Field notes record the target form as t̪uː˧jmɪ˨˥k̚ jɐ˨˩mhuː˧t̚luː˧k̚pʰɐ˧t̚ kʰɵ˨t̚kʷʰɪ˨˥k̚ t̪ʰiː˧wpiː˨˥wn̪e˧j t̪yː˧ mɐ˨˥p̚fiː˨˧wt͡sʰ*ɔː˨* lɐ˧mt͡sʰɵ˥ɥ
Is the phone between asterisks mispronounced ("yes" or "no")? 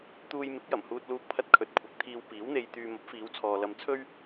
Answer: no